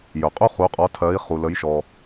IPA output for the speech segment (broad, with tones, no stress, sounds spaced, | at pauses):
j ɵ˩ qʼ u˦ χ u˩˥ qʼ ɔ˩˥ tʰ ɜ˩˥ i̯ χ u˩ l ə˩˥ j ʃ ɔ˩